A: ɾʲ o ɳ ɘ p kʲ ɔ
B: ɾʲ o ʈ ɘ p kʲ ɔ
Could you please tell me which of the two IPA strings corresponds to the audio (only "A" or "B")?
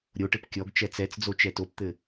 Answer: B